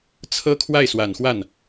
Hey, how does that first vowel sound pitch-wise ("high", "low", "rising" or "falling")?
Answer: high